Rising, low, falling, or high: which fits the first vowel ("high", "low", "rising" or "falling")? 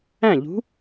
falling